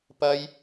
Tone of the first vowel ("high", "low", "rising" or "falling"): high